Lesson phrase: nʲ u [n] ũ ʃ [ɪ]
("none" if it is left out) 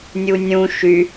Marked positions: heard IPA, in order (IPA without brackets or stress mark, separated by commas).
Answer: nʲ, y